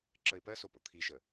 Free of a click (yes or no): no